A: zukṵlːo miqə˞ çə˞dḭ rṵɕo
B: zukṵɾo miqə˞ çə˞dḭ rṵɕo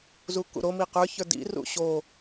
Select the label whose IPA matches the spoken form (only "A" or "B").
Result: B